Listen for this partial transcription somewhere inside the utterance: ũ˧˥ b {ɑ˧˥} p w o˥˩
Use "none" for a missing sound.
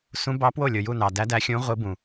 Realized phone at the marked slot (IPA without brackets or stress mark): ɑ˧˥